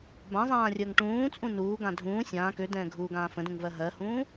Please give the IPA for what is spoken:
b ã zˤ ãː rʲ əː ŋ ʈ ũː t͡sʼ ũ n uː ɡ ã dʱ ũː sʲ ãː k ø d ɛ̃ː ɡʱ uː ɡ ãː f ə̃ d ũ ŋ v ɜ ɦ ɜ h ũː

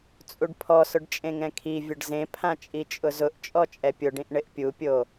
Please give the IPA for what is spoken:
t͡sʼ u ɖ pʰ ɔ s ʊ ɖ t͡ʃʼ ẽ ŋ ɛ̃ kʰ i vʲ ʊ ɖ z ẽ pʰ ã t͡ʃʼ i t͡ʃʼ ʊ z ʊ ʔ t͡ʃʼ ɔ t͡ʃʼ ɛ pʲ ʊ ɖ ĩ ʔ ɳ ɪ ʔ pʲ u pʲ o

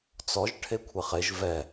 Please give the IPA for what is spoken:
t͡s ɔ ʒ ʈʰ e kʷʰ e χ e ʒ v ɛ

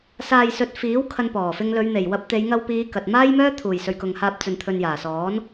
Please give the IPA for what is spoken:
s aː˧ j s ɵ˨˥ t̚ f iː˨˥ w kʰ ɐ˧ n p ɔː˨˩ f ɪ˧ ŋ l ɵ˨˧ ɥ n̪ e˨˩ j w ɐ˧ p̚ t̪ e˨˧ j ŋ ɐ˧ w p iː˨˧ k ɐ˨ t̚ m aː˥ j m œː˥ t̪ʰ uː˨˩ j s ɵ˨ ɥ k ʊ˨ ŋ h aː˧ p̚ t͡s ɵ˨ n t̪ʰ ɵ˨ n j aː˨˩ s ɔː˨˥ n

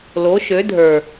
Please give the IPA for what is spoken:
l o˨˦ ʃ ø˨˦ dʱ ə˞˨

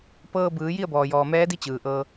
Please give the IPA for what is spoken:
p ɤː˧ b ɯː˩˧ j i˥˨ ə̯ b ɔː˩ j ɔː˩ m ɛː˧˥ d i˧˥ t͡ɕ ɯː˩ ʔ ɤː˧

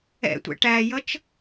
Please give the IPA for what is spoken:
ɛ̰ tʷ ɛ̰ ʈ æ j ʌ t͡ʃ

